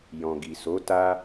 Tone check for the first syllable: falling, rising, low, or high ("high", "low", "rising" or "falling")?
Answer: low